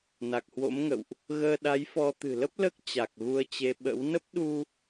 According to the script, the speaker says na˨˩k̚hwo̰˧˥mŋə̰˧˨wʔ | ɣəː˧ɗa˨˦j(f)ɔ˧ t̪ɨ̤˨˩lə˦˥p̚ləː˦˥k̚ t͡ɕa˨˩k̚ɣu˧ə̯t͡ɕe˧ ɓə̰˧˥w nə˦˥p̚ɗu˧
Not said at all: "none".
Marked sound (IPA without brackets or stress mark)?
f